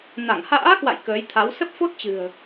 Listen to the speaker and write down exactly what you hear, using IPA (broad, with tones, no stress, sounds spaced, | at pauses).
n a˧˩ ŋ h a̰ː˧˥ k w a̰˧˨ j k əː˨˦ j t̪ʰ a˨˦ w s ə˦˥ p̚ f o˦˥ t̚ t͡ɕ ɨ̤˨˩ ə̯